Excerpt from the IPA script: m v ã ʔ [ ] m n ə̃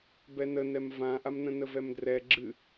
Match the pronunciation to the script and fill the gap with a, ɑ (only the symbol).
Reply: a